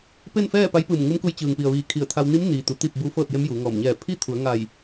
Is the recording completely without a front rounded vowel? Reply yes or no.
yes